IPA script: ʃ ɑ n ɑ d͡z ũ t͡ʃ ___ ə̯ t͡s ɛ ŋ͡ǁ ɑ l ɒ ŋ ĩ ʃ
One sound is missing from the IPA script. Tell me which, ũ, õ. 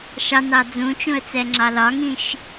ũ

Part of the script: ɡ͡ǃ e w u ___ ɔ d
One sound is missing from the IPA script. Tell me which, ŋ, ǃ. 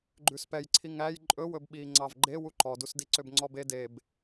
ǃ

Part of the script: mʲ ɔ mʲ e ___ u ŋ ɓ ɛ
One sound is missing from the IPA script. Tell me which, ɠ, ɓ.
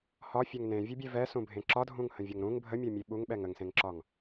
ɓ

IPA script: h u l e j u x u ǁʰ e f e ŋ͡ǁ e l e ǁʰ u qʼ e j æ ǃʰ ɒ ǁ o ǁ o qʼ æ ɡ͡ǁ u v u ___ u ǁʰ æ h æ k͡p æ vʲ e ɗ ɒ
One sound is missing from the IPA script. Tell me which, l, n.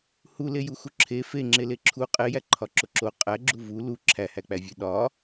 l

